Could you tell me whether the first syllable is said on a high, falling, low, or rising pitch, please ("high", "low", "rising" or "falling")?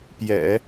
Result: low